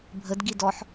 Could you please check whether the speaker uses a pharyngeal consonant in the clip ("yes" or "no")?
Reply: yes